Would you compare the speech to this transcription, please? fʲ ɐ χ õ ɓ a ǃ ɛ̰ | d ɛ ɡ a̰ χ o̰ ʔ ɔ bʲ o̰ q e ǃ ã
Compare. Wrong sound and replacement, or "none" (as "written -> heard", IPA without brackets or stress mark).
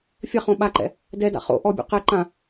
ɡ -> d